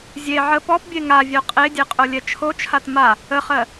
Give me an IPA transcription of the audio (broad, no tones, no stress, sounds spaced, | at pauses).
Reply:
zʲ e ʕ ə p ɔ p bʲ e ŋ a vʲ œ qʼ e dʲ e qʼ o lʲ ɛ t͡ʃʰ o t͡ʃʰ a t m a | ə χ ɜ